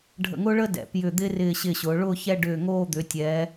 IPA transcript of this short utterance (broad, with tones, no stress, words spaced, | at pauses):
ɖʱə̰˧˩ŋʊː˥ɭəː˥ dɛ̰˩˧pjʏ˧˩ d̪ɪː˥ rɪː˧˩ ɕɪ˧˩ɕʊː˩˧ ɭʊː˥˧çɛ˥˧ɖʏː˧˩ŋoː˥˧ d̪ʏː˩˧tʲɛː˩˧